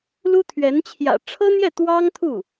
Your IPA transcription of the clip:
l u˥ t̪ʰ ɥ ɛ˧˥ n t͡ɕʰ j ä̰˨˩ ʈ͡ʂʰ ɤ˥ n̪ j ɛ˥˩ t̪ w ɑ˥ ŋ t̪ʰ u˥˩

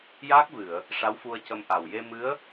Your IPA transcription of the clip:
j aː˦˥ k̚ v ɨ˨˩˨ ə̯ | ʂ a˧˥ w f u˧ ə̯ c ə˧ m ʔ a˨˩ w j e˧ m ɨ˧˥ ə̯

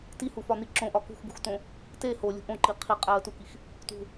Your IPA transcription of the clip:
t i h u f ɒ n i ǁ õ ʔ ɒ k ṳ x b ṳ x t õ | t e h o lʲ ṳ ʔ õ ǃ i qʰ i qʼ æ ə̯ t u k i x | t ṳ

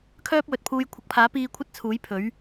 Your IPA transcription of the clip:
kʰ œː˥ p̚ w ɵ˨ t̚ pʰ uː˧ j kʷʰ ɐ˨˥ k̚ pʰ aː˨˥ p iː˧ kʷʰ ɐ˥ t̚ t͡sʰ uː˨˥ j pʰ ɵ˨˥ ɥ

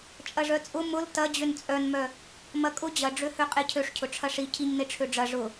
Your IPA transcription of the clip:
t͡ʃʼ ɐ ʐ œ t͡sʼ ʊ m ʊ l t ɐ d͡ʑ ø n t͡sʼ œ n m œ | m ɐ kʼ ʊ d͡ʑ ɐ ɖ͡ʐ ø h ø qʼ e cʰ ø ʂ cʰ ʊ ʈ͡ʂʰ ɐ ʂ i cʰ i ɲ n e ʈ͡ʂʰ ø ɖ͡ʐ ɐ ʐ ʊ

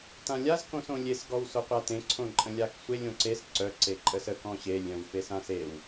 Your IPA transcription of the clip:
t ã lʲ a z k õ s õ lʲ e s ɡ ɔ w s o qʷ a t ẽ ǀʰ õ ǃʼ ə̃ lʲ a k sʷ e lʲ õ ǀ e s ǀ œ ǀ e ǃʼ ə s ə k ɔ̃ ɕ e lʲ œ̃ w f e s ã s e w

